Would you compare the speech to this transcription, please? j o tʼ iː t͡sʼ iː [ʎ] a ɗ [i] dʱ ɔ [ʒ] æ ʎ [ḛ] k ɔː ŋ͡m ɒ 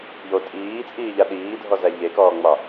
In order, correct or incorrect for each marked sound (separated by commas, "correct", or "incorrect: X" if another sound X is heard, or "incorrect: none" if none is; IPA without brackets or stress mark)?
correct, incorrect: iː, incorrect: z, incorrect: e